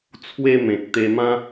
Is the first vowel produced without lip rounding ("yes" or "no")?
yes